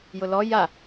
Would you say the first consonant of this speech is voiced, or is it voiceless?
voiced